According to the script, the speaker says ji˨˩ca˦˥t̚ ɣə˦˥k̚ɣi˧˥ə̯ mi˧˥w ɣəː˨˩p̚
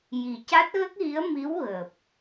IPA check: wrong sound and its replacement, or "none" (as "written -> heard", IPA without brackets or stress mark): none